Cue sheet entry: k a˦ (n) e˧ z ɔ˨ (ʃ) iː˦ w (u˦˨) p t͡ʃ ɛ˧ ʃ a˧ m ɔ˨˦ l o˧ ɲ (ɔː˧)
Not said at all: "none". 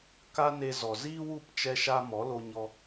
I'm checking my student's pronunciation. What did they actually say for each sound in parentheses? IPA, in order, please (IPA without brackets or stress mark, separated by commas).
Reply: n, z, u˦˨, ɔ˧